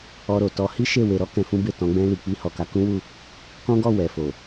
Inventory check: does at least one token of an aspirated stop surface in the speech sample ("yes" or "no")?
no